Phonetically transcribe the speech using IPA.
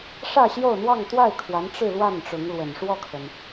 ʂ ä˥˧ ɕ j o˥˧ ʊ̯ n̪ w ɑ˥˧ ŋ t̪ w a˥˩ ɪ̯ kʰ w a˧˥ n ʈ͡ʂ ɻ̩˥˧ l w a˥˩ n ʈ͡ʂ ʊ˧˥ ŋ l w ə˨˩ n ʂ w ɔ˥˩ kʰ ə˩ n

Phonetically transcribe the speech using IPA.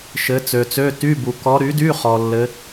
ʃ ɘ˧˥ t͡s ø˨ t͡s ø˧˥˧ t y˧˥˧ b u˨ k ɔ˧˥ ɾ y˩˥ d y˧˥˧ χ ɔ˨ lː ɘ˧˥

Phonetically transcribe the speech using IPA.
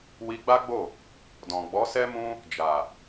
w i˧ ɡ͡b a˦ ɡ͡b o˦˨ | d ɔ̃˨ ɡ͡b ɔ˨˦ s ɛ˦ m ũ˦ | d͡ʒ a˨

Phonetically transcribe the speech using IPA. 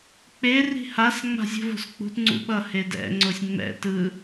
k͡p e r i̤ h a s ŋ͡m a̤ zʲ ṳ v o̤ s k͡p ṳ t ŋ͡ǀ ṵ ɓ ʌ h e d ɛ̰ ŋ͡ǀ o sʲ ŋ͡m ɛ̰ t ɯ

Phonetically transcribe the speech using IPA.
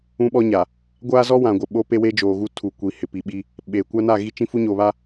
ũ˦ ɓ ɔ˦ ɲ a˨ | ɡʷ aː˦ z ɔ˦ w ã˨ ɡʷ ɪ˨ ɓ o˦ p e˦ w e˦ d͡ʒ oː˨ ɣ u˦ tʰ u˨ kʷ i˨ h ɪ˨ p i˨ ɓ i˦ | ɓ eː˨ kʷ a˦ n a˦˨ ɣ i˦ t͡ʃ ĩ˦ f u˦ ɲ oː˨ β a˦

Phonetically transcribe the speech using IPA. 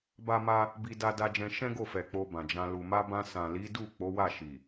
b a˦ m a˦ | b i˧ d a˧ d a˧ d͡ʒ ɛ̃˧ ʃ ɛ̃˦ ɡ o˦˨ f ɛ˨ k͡p o˧ b ã˨ d͡ʒ ã˧ l u˨ m a˧ b ã˧ s ã˨ l i˨˦ d u˦˨ k͡p o˨˦ w a˦˨ ʃ i˨

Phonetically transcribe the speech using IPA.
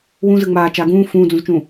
w ũ z ɯ ŋ͡m aː t͡ʃ aː ɡ ũː f ũː d͡z ũ z t͡ʃ ũː

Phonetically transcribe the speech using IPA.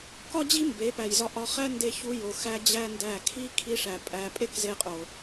k ɒ˦ d͡ʑ i˦ m b e˨˦ p æ˨ j z ɒ˧ ʔ ɒ˦ χ æ˦ n d e˧ ç u˧ j o˨ x æ˦ d͡ʑ æ˦ n d æ˦˨ kʰ i˦ kʰ i˧ ʂ æ˨ pʼ æ˧ pʼ e˦ k z e˧ qʼ o˨

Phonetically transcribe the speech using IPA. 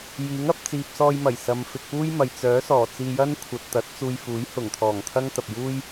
j iː˨˥ ŋ ɐ˧ p̚ t͡s iː˨ p̚ s ɔː˧ j m ɐ˨˩ j s ɐ˨ m f ɪ˧ k̚ p uː˥ j m ɐ˨ j t͡s œː˨˥ s ɔː˨˩ t͡s iː˧ j ɐ˥ n kʷʰ ɐ˨ t̚ t̪ ɐ˨˥ t̚ t͡s uː˧ j f uː˨˥ j h ʊ˨˩ ŋ t̪ʰ ɔː˨˩ ŋ t̪ʰ ɐ˥ ŋ t̪ ɐ˨ p̚ j uː˥ j

